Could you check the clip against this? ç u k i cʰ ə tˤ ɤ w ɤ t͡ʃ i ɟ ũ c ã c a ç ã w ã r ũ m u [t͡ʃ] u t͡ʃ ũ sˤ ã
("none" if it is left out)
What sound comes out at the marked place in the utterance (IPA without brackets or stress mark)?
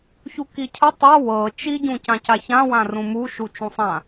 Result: ʃ